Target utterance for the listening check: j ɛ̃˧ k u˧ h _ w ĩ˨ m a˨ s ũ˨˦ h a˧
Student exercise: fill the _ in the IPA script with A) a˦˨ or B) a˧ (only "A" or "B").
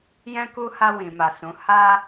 B